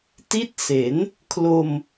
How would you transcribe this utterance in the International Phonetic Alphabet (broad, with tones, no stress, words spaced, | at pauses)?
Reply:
ti˦˥t̚se˩˦n | kʰlo˧m